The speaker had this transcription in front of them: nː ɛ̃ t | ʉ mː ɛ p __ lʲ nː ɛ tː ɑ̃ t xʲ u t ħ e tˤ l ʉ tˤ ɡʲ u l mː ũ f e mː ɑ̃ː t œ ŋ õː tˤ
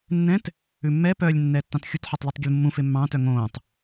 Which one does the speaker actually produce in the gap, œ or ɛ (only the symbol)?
œ